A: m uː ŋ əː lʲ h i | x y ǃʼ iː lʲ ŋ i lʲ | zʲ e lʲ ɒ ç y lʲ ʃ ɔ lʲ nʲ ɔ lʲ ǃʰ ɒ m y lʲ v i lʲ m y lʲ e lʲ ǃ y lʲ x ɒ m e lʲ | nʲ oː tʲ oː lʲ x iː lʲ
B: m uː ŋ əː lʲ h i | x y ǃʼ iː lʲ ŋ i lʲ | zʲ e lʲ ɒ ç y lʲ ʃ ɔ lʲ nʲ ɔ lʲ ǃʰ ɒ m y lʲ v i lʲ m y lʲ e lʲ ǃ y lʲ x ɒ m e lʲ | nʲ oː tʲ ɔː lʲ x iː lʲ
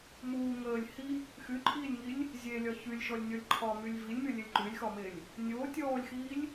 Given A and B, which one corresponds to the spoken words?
B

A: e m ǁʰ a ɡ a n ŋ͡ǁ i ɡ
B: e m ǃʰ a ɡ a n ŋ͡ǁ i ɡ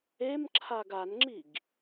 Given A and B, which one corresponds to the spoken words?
A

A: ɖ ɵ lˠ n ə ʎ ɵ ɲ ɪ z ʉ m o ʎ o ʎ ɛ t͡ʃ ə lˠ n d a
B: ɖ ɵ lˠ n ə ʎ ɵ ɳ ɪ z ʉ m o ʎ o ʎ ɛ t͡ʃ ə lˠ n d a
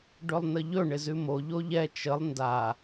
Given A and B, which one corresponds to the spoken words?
B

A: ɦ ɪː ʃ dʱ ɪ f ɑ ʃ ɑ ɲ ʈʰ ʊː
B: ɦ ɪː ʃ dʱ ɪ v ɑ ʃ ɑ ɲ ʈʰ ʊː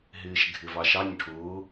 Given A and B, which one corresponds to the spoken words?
B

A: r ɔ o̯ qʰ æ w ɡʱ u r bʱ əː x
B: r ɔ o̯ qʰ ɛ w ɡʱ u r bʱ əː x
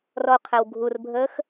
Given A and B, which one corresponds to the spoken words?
B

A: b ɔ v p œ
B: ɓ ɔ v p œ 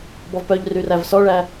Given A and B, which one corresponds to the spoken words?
A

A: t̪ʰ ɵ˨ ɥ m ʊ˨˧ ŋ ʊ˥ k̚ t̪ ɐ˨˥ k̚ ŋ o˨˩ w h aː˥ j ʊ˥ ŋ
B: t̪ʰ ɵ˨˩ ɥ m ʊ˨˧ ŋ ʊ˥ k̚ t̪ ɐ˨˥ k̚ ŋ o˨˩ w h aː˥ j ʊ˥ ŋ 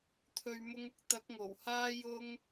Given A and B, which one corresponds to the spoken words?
A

